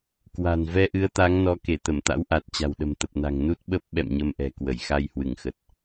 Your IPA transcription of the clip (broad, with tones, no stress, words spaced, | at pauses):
kwa̤˨˩n vɛ˧ʔɨ˨˦ə̯t̪a˨˦ŋnɔ˨˦ ke˧˩t̪ə˧˩mt̪a̰˧˥wʔa˨˩t̚ t͡ɕa̤˨˩wɗə̤˨˩mt̪ə˨˩p̚na̤˨˩ŋ nu˦˥t̚ɓə˦˥p̚ ɓɛ̰˧˨mɲə˧mʔɛ̤˨˩kwə˧˩j xa˧jhwɨ˧˩ŋxə˨˩t̚